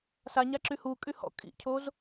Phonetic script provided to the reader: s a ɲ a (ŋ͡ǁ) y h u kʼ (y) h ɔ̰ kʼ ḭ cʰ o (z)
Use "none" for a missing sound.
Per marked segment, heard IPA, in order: ǁ, y, z

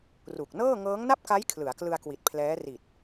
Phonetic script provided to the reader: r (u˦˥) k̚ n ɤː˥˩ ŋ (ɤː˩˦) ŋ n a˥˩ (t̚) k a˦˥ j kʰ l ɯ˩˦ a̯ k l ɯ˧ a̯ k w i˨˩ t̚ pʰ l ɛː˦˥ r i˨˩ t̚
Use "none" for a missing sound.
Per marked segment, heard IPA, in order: u˨˩, ɤː˦˥, p̚

